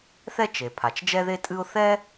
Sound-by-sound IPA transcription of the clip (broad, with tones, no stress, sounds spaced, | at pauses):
θ ɛ˥ t͡ʃ e˩ pʰ a˩ t͡ʃ d͡ʒ ɛ˥ ð e˥ tʼ ɨ˥ ʊ̯ θ ɛ˥